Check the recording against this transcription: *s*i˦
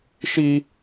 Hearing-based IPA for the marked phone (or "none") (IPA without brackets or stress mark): ʃ